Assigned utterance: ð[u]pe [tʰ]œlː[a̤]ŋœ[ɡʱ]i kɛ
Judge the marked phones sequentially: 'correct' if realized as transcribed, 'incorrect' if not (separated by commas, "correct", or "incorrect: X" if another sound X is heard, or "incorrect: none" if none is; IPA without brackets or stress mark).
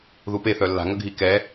correct, incorrect: θ, correct, correct